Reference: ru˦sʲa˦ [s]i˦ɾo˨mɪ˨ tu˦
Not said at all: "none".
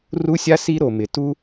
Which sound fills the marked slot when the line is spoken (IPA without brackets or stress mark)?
s